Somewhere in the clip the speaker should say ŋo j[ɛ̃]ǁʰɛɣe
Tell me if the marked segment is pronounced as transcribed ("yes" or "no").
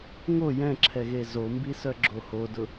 yes